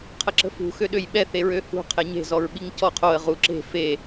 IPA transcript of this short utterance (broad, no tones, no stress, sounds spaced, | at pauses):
qʰ ə ǁ ə̤ f ṳ x ø ɗ ø j ɓ ɛ θ e ɹ ø h ṳ qʰ e ɲ e̤ z ɔ ɹ ɓ i ŋ c ɔ qʰ o ə̯ ʁ u ǁ e̤ f e